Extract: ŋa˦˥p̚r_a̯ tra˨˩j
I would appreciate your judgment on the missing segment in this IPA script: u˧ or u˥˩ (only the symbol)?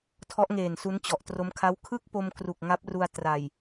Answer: u˧